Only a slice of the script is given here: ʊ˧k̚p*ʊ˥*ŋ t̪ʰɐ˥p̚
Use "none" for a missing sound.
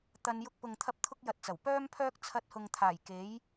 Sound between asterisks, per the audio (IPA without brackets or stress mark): ʊ˨